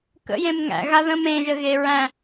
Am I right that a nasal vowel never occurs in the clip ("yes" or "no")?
no